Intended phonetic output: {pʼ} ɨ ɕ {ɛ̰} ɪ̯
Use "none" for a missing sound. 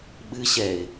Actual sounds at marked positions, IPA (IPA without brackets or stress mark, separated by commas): ɓ, ɛ